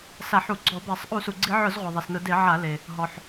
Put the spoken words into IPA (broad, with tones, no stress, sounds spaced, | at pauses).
s a˧˩˧ ħ u˧˩˧ ɡ͡ǀ ɔ˧˩˧ b ɛ˧˩˧ sˤ ʔ u˧˩˧ s u˩ ɡ͡ǀ i˧˩˧ ʕ ʊ˧˩˧ z ʁʷ i˩ ðˤ i˩ s n ʊ˧˩˧ d e˧˩˧ ʕ a˧˩˧ l e˩ | ɦ ɔ˩ ħ